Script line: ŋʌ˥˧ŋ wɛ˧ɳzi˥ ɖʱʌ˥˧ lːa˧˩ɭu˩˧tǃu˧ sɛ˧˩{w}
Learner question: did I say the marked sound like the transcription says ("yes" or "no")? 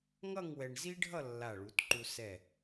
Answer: no